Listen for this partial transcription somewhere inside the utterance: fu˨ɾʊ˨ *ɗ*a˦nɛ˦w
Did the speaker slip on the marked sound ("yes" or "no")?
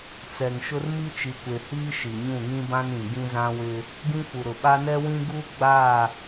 yes